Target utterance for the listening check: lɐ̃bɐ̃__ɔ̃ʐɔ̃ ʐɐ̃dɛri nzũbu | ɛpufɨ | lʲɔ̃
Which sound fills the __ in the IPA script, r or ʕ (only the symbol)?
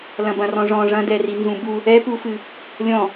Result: r